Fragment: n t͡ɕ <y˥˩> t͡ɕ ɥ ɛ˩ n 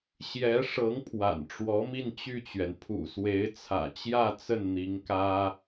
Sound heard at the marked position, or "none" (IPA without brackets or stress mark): y˥˩